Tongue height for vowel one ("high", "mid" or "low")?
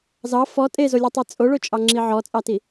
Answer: low